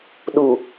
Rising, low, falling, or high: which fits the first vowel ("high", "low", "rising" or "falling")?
low